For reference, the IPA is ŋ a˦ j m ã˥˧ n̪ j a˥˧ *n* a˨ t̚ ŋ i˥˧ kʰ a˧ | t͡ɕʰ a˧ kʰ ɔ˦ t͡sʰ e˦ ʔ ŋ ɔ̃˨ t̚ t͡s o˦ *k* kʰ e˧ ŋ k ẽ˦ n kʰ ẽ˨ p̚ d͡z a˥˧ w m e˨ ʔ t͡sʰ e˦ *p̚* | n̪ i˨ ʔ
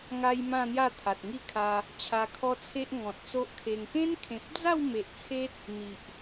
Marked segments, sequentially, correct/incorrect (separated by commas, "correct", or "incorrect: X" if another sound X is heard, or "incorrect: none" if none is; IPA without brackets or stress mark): incorrect: t̪ʰ, incorrect: ʔ, incorrect: t̚